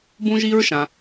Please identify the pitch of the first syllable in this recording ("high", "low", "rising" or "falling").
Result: high